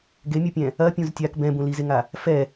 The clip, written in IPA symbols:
ɡemʲopʲɛ̃ | ɐpʲũz tʲak bɛ̃bũ lizeŋa | fɛ

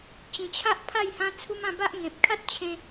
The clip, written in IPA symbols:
t͡ɕĩ˨˩t͡ɕʰa˦ʔpʰa˥˧j hã˦t͡sʰu˦mã˥˧ ba˦ʔ ŋẽ˨p̚ kʰa˦t̚t͡ɕʰẽ˧

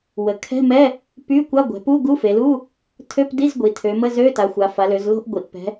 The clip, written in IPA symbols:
wə˩˧ kʰɛ̤˧˥˧mɛ˧˥˧ | py˧˥˧kʷa˧˥˧ɡʷɛ̤˩˧pu˧˥˧ ɡu˧˥˧fe˩˧lu˧˥˧ | tʰø˧˥˧pdi˧˥˧z ɡʷi˩˧tʰø˩˧ mə˧˥˧zø˧˥˧ta˩˧xʷa˩˧ fa˩˧lø˩˧zlo̤˧˥˧ʔɡʷi˩˧ʔ pɛ̤˩˧

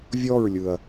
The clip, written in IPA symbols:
vʲɔɹlʲɯɐ̯

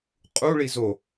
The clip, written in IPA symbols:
qʼuɭi zo

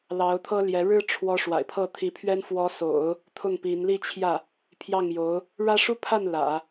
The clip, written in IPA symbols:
lɑ˧˥ʊ̯t̪ʰɤ˥ ljɛ˧˥ ɻɻ̩˥ʈ͡ʂʰwɔ˧˥ ʂwa̰˨˩ɪ̯pʰɤ˥˩t̪ʰi˧˥pʰɥɛ˥n fwɔ˧˥so̰˨˩˦ʊ̯ | t̪ʰʊ˥˩ŋpi˧˥n li˥˧t͡ɕʰjä˥˩ | pʰjɑ˥˩ŋjo˧˥ʊ̯ | ɻä˥ʂu˥pʰa˥˩n lä̰˨˩˦

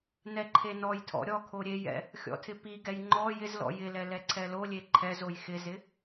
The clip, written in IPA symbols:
nɛǃʰenɔjtʰɔ̰ ɾʲɔkʰo ɾʲejɛ̰ | xʲɔ̰tʰɪpiɡɛj ŋ͡ǃɔ jɪz lɔ̰jɪlɛ lɛǀʰɛlolʲe ǃʰɛz ojxɪzɪ

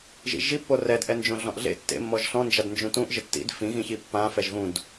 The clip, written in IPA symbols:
ʒḭʒipːo rɛdʔɛnd͡ʒõ ɮɔ̃ʔɮḛ tːḛmːɔʒ ɬɔ̃nd͡ʒadnd͡ʒũ tũʔ ʒɪtːḭd fĩɣĩçi pːã fɛʒɣũd

